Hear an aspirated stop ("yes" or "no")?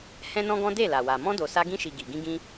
no